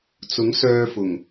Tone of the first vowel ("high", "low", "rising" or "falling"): rising